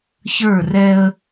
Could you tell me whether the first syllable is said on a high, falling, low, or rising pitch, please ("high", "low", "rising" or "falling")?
falling